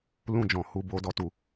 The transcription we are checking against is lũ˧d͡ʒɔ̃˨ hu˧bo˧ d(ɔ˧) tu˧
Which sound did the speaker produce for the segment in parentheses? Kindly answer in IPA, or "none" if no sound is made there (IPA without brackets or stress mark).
ɔ˧